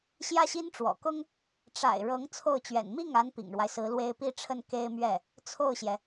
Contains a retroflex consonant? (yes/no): yes